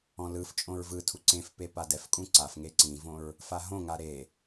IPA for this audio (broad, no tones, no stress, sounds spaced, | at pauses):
ɔ̃ l ɯ f t͡ʃʼ õ ɹ v ɯ tʰ u ǀ ẽ f p e p a d ɛ f kʼ ũ ǀ a f ŋ e ǀ ĩ v õ ɹ | f a ɦ õ ŋ a ɾ e